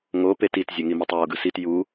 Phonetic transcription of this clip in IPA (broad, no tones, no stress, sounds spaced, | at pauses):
ŋ o p e t i t zʲ ɛ ŋ i m i tˤ j o ɡ ɯ s i t j u